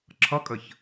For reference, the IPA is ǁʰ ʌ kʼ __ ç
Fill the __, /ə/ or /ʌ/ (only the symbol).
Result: ə